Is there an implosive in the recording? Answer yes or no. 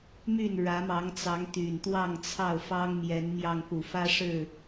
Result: no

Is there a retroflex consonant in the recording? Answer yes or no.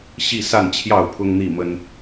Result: no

